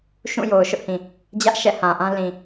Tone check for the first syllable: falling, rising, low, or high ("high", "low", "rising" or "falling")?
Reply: falling